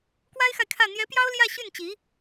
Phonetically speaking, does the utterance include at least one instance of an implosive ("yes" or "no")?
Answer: no